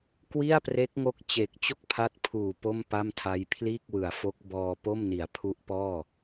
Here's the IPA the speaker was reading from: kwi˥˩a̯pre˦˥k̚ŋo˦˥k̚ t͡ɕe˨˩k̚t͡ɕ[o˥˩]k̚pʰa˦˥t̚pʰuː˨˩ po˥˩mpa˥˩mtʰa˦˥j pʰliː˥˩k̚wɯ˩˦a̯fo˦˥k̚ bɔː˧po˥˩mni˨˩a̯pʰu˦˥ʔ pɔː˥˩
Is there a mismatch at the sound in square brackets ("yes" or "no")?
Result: no